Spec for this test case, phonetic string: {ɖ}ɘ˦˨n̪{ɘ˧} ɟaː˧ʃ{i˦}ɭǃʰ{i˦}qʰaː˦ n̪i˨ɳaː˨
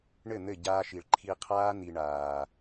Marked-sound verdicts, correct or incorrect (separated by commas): incorrect, incorrect, incorrect, incorrect